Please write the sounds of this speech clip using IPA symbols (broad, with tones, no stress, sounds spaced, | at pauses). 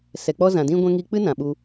s ɛ˨ k͡p ɔ˧ z ã˨ d ĩ˦ ɡʷ ɛ̃˦ ŋ i˧ k͡p ɨ˦ n ã˨ ɓ u˧